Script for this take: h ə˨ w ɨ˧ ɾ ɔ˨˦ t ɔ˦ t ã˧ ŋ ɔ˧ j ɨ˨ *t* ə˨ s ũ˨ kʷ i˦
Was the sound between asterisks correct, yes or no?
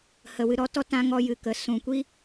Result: no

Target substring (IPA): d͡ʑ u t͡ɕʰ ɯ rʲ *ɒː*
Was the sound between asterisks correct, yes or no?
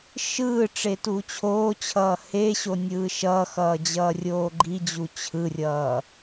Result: no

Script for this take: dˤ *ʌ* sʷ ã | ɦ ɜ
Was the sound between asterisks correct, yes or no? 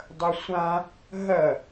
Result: no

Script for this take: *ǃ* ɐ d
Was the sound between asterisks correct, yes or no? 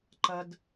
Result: yes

